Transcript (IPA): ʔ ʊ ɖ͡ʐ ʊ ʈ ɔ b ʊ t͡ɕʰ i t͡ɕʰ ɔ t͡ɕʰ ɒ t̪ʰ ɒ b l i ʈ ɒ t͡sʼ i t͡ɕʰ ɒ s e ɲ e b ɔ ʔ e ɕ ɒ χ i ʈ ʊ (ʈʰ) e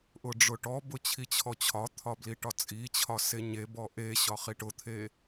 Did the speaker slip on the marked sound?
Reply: yes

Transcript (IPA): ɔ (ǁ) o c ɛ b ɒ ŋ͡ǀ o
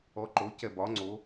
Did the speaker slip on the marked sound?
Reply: yes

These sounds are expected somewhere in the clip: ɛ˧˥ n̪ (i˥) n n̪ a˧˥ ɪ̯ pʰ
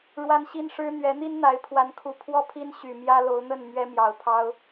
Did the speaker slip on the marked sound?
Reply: no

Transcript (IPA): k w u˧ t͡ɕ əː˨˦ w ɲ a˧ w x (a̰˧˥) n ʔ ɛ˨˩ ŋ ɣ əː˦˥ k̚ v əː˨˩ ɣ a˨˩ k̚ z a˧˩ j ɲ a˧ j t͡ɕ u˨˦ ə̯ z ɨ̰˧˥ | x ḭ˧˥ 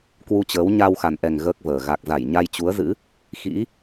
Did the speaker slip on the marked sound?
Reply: yes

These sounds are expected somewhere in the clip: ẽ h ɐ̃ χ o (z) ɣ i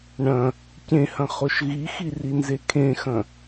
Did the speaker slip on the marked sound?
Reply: yes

